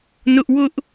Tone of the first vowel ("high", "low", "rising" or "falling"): high